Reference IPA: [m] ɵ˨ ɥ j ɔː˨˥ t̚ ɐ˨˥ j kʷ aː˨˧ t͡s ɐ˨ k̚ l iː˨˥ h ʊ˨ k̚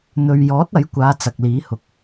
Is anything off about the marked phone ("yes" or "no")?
yes